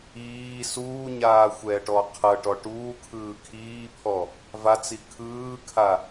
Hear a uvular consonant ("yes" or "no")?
yes